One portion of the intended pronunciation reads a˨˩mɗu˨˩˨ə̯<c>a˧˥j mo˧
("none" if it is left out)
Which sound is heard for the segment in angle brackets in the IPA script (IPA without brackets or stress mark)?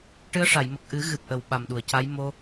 c